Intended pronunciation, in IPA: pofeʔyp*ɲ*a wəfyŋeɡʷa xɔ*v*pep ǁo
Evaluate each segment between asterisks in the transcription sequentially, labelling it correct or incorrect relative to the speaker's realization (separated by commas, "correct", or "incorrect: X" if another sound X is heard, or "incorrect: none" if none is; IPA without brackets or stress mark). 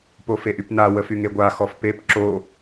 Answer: incorrect: n, incorrect: f